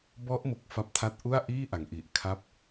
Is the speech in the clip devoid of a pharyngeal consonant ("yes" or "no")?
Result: yes